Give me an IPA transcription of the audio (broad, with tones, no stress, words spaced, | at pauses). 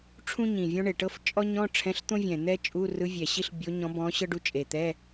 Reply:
ʈ͡ʂʰũ˥ ɲĩ˨˩vʲɔ̃˥ɳe˨˩ ʈɤ˥ft͡ʃʼɔ˥ɲɔ̃˧˥˧ ʈ͡ʂʰɛ̃˧˥˧ɬt̪õ˥vʲɛ̃˨˩ n̪ɛ˥t͡ʃʼu˧˥˧ rɯ˧˥ vʲɛ˨˩ɕi˥ɬ bʲo˧˥ɲɔ̃˧˥bɔ̃˧˥ ɕɤ˥ɖu˧˥t͡ʃʼe˨˩t̪ɛ˧˥˧